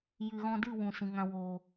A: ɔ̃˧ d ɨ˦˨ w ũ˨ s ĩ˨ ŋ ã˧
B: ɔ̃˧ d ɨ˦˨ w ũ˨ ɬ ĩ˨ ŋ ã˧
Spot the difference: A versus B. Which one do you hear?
A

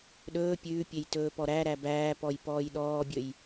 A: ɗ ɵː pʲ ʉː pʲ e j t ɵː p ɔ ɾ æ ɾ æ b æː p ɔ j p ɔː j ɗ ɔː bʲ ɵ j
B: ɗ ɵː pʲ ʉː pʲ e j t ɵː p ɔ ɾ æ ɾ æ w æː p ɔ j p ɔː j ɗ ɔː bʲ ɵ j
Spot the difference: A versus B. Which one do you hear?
A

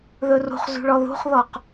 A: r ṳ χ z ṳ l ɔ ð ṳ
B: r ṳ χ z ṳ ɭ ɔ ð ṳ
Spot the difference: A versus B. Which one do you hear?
B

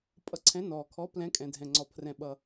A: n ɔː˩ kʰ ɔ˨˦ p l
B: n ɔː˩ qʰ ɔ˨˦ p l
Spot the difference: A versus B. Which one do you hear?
A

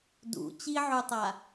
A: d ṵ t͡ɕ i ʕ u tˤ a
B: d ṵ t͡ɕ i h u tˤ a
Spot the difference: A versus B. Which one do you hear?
A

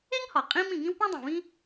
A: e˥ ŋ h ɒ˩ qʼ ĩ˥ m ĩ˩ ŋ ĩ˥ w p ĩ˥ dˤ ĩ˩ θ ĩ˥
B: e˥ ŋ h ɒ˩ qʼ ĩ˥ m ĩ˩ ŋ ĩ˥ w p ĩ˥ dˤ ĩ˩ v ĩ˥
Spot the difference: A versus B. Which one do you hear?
B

